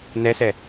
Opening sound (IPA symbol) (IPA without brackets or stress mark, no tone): n